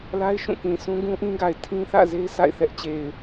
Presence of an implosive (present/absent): absent